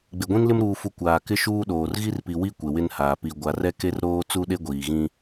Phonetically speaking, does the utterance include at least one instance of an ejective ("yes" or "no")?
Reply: no